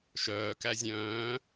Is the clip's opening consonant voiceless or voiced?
voiceless